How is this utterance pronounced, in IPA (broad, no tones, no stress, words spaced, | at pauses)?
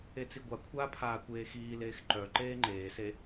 et͡siɡʷakʷʰaː pʰaːkʷeːxiːleːx ǃœ ǃeːŋ͡ǃeːse